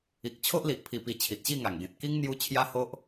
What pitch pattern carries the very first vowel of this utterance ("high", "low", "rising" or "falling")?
low